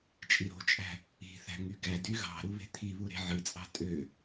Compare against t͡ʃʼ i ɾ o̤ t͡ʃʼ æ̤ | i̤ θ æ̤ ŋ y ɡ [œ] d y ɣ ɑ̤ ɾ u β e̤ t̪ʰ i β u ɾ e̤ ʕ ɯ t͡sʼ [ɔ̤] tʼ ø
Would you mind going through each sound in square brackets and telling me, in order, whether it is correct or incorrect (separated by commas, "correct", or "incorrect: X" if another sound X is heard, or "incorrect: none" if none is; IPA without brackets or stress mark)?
incorrect: æ, incorrect: ɑ̤